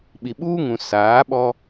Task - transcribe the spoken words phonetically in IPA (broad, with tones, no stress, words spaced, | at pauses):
ɓi˨ɓuː˦ŋũ˨ saː˨˦ɓɔ˦